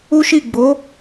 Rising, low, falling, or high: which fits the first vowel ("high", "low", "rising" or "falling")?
high